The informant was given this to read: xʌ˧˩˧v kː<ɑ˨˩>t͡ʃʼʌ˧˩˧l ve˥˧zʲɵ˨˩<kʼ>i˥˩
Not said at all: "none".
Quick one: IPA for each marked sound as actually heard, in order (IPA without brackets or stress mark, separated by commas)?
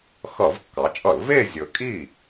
ɑ˩˧, kʼ